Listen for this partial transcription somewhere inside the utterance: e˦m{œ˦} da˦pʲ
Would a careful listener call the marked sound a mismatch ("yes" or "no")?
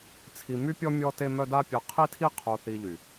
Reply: no